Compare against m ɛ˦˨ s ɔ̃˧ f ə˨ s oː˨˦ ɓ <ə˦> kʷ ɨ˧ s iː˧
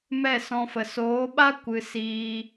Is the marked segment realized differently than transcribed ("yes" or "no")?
yes